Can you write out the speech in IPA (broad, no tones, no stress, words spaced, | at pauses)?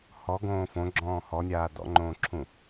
hɔɡõː fõɡ͡ǁɔ̃ː hɔnʲaː dɔ̰ŋ͡ǃõːǁʰũ